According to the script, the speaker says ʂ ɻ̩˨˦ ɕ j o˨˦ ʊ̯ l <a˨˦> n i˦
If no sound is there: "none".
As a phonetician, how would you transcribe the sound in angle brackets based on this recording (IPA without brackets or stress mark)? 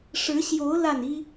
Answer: a˥˨